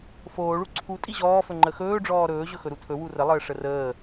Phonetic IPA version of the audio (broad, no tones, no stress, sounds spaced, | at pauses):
f oː ɭ u ǀʰ u tʼ i ʑ ɔː f ɵ ŋ͡ǃ ə x ɵː ɖ͡ʐ ɔː ɾ ɵː ʑ ɵ x ɵ ɾ u tʰ ɵ w u r ə lˠ əː ʂ ə r əː